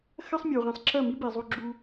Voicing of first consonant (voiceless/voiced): voiceless